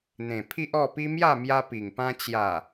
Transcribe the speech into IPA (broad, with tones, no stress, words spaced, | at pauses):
n̪ẽ˨˩pʰi˦ʔɔ˥˧ pi˦mja˥˧ mja˦pi˨˩ŋpã˦ t͡ɕja˨˩